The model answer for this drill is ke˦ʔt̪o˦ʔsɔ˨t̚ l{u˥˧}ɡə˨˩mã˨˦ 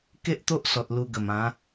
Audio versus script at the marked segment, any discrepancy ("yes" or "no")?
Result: yes